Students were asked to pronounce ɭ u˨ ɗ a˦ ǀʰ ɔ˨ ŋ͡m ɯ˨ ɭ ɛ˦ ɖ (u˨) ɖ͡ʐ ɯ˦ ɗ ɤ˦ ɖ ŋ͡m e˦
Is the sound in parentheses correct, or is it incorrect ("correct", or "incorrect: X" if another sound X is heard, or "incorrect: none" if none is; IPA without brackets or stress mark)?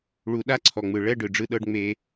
incorrect: ɯ˨